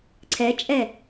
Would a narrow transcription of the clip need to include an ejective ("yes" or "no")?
yes